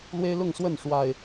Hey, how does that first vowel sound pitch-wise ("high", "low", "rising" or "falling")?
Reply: high